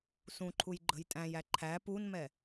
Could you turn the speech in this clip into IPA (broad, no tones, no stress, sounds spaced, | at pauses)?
s ũ ǃʰ u j ɡ͡ǃ ə̤ j tʼ æ̃ j æ ǃʰ æ p u n m ɛ